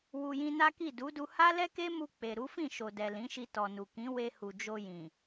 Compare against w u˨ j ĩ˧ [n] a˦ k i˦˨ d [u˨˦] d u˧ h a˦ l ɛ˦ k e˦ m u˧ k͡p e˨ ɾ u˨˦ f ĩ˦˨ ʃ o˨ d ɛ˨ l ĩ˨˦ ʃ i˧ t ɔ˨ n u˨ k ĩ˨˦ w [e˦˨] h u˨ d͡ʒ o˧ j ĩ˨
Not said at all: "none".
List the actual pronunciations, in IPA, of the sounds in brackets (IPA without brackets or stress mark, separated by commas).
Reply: n, u˨˦, e˧